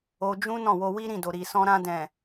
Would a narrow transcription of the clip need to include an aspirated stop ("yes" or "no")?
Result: no